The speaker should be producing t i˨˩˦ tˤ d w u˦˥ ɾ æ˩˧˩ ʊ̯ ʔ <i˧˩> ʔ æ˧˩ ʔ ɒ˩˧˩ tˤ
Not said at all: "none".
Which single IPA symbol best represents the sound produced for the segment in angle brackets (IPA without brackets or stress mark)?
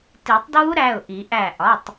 i˨˩˦